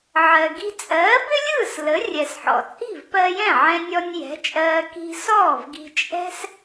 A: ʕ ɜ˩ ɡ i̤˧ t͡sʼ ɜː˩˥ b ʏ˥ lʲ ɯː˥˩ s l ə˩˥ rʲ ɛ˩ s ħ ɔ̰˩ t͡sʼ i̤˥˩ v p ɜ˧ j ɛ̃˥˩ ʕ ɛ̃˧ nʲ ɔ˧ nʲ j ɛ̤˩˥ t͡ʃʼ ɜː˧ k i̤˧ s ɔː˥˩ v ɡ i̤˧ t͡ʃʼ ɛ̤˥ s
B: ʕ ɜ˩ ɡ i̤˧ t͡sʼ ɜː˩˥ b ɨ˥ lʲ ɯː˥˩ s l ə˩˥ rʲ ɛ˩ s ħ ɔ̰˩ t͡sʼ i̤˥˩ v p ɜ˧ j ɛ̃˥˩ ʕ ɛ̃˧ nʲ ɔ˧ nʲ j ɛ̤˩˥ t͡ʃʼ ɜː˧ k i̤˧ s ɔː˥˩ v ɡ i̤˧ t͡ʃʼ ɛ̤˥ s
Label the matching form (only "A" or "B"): A